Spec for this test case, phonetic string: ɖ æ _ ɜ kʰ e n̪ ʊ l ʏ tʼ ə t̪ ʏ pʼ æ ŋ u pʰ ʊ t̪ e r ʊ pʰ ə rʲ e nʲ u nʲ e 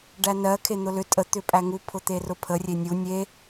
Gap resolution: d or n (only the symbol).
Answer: n